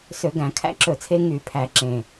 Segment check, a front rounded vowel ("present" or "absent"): present